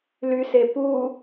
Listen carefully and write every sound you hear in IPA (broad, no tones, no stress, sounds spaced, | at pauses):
l y s e p u